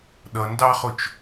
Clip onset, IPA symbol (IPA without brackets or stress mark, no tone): ɗ